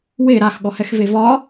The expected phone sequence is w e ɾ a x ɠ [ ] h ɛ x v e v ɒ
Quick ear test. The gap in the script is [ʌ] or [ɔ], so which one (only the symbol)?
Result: ɔ